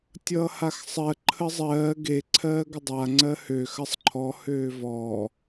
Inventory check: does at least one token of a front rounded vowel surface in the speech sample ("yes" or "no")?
yes